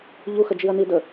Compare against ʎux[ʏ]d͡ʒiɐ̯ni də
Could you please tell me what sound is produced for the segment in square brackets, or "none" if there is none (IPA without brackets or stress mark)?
ə